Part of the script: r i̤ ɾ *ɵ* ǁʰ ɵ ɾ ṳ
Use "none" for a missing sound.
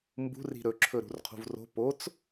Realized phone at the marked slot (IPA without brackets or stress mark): ɵ